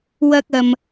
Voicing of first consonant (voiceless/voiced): voiced